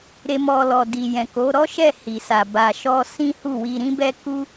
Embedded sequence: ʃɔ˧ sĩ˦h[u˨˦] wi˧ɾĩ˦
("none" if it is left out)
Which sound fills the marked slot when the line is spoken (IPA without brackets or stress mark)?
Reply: u˦˨